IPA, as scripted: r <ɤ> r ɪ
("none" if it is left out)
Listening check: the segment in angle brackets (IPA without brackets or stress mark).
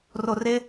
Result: o